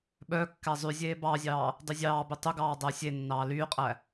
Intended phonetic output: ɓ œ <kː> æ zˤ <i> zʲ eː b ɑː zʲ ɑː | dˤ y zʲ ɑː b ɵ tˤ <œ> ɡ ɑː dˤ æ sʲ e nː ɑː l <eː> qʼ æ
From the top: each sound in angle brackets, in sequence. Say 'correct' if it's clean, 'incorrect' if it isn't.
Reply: correct, incorrect, incorrect, incorrect

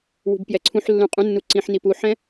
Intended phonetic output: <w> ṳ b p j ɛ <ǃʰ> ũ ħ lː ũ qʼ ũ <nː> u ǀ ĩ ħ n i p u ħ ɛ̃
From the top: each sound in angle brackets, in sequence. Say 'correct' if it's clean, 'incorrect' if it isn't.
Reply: correct, incorrect, correct

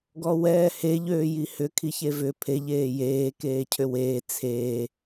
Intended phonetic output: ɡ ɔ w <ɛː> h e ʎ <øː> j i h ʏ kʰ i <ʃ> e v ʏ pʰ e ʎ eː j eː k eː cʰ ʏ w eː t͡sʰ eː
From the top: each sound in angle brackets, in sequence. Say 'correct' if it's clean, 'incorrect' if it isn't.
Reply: correct, correct, incorrect

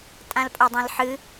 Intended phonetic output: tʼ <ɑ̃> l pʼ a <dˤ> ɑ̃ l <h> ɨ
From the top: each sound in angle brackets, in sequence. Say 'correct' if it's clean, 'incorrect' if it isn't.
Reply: incorrect, correct, incorrect

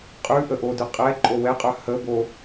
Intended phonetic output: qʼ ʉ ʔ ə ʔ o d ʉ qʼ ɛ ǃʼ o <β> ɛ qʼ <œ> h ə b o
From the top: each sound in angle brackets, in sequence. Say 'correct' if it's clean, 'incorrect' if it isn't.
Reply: incorrect, correct

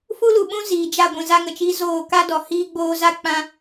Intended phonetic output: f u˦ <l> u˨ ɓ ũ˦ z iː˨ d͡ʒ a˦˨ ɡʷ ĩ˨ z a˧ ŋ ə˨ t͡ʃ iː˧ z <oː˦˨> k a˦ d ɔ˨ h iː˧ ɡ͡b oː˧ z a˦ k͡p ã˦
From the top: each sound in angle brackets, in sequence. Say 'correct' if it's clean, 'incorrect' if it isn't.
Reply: correct, correct

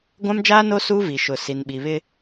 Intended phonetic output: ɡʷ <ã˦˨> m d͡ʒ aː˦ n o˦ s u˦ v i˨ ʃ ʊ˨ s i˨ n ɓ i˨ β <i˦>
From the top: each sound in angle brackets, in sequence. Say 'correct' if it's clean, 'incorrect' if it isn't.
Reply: incorrect, incorrect

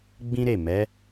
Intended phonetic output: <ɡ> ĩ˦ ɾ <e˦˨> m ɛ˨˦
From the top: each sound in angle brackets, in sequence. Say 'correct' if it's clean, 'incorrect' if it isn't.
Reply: incorrect, correct

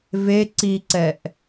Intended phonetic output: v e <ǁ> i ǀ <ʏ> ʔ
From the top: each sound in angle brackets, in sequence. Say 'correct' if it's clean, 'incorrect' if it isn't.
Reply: incorrect, incorrect

